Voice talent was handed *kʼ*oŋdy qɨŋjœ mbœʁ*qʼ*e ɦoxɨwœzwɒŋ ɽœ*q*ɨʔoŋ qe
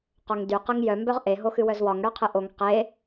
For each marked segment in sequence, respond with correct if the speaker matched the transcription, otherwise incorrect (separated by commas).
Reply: incorrect, incorrect, incorrect